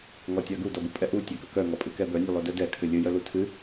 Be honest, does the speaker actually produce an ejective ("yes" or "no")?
yes